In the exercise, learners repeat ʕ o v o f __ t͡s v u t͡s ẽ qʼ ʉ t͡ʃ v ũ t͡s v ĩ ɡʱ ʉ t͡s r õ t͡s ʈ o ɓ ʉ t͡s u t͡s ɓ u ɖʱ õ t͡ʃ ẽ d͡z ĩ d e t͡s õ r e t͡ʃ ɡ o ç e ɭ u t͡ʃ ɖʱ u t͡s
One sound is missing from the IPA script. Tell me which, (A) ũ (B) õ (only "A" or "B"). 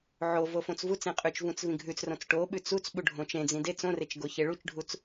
B